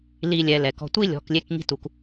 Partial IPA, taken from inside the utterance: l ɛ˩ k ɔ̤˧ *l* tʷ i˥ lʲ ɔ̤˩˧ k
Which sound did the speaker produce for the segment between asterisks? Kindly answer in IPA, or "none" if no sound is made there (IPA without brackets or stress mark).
none